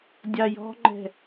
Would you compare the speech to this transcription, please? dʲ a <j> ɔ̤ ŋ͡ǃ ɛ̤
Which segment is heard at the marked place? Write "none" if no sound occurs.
j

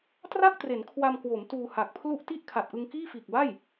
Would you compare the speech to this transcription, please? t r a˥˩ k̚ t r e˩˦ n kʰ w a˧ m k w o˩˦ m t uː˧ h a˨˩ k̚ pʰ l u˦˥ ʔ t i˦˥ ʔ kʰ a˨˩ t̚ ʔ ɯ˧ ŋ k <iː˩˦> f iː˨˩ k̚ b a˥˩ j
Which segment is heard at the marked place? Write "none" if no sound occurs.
iː˥˩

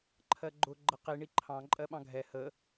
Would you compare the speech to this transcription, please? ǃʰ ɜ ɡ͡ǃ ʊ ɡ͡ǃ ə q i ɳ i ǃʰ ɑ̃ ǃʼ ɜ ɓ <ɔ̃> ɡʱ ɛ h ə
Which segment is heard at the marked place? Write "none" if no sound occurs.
ɑ̃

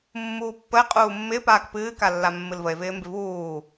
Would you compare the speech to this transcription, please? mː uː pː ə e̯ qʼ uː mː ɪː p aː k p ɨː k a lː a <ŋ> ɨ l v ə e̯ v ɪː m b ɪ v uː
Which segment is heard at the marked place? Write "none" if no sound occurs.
mː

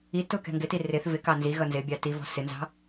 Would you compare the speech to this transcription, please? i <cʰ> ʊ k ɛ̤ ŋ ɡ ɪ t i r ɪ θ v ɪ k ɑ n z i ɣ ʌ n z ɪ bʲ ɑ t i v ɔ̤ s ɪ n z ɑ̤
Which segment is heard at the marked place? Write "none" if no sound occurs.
t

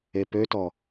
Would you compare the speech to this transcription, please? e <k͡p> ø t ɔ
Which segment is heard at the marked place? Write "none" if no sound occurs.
p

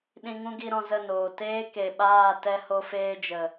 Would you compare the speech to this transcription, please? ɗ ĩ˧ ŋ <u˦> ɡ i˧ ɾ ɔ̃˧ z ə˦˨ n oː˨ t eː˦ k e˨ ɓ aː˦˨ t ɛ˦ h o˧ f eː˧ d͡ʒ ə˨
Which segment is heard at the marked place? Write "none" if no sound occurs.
ũ˦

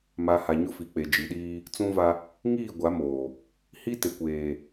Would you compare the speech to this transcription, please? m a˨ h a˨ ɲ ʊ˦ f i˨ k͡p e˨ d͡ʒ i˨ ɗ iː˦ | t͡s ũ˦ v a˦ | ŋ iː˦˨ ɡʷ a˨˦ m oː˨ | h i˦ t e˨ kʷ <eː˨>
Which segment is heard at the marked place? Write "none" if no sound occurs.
eː˨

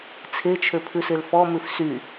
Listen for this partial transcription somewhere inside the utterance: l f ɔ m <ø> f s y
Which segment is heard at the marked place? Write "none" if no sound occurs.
ʉ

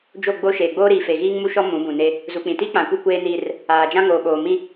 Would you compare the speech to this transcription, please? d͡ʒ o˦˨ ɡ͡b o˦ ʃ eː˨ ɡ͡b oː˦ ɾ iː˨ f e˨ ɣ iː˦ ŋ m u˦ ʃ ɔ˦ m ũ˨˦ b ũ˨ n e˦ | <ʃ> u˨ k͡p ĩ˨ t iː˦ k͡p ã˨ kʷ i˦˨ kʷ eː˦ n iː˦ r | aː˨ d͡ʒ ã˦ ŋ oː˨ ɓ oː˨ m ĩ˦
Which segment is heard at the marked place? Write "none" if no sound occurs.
z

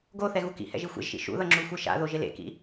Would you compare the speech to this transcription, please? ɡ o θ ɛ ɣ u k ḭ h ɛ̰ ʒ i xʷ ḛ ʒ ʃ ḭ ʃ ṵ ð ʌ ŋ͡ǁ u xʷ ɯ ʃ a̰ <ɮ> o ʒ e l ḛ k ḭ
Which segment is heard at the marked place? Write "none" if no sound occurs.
ð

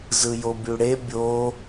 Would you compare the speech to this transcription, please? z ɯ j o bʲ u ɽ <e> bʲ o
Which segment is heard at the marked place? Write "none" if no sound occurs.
e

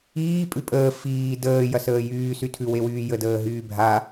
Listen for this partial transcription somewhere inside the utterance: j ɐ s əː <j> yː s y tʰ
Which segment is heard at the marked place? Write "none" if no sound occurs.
j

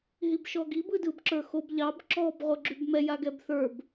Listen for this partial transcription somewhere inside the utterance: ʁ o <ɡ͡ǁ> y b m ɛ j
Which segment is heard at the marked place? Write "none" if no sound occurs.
ɡ͡ǁ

